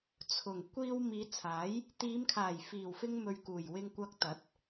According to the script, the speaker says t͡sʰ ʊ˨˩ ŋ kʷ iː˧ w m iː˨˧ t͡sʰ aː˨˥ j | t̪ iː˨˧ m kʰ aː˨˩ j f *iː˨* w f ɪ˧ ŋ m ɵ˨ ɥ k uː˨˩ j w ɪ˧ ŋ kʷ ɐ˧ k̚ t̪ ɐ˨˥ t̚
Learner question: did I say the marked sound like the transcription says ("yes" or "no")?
no